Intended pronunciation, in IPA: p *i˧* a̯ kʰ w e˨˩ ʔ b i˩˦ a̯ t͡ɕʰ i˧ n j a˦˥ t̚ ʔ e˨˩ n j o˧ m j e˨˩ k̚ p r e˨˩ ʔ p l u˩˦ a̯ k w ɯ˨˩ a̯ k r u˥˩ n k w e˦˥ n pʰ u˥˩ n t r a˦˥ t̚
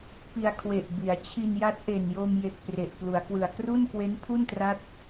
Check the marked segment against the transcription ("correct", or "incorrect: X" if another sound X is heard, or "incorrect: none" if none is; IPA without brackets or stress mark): correct